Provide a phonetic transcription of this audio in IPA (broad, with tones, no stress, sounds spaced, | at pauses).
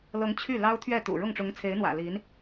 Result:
l ɤ˧˥ ŋ t͡ɕʰ y˥˩ l ɑ˥ ʊ̯ t̪ʰ ɥ ɛ˥˩ t̪ ṵ˨˩ ɻ ʊ˥˩ ŋ ʈ͡ʂ ʊ˧˥ ŋ t͡sʰ e˧˥ ɪ̯ n̪ w ä̰˨˩ l i˧˥ n